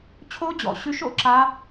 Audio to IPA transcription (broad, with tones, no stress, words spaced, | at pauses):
t͡ɕʰo˦˥d͡ʑɔ̰˩˧ ɕʉ˦˥ʃo̰˩˧ǁa˦˥